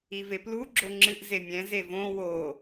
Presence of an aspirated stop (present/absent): absent